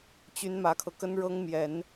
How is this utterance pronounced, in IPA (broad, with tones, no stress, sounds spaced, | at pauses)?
t͡ɕ y˧˥ n m ä˧˥ kʰ ɤ˧ k ə˥ n ɻ ɤ˥ ŋ m j ɛ˨˩˦ n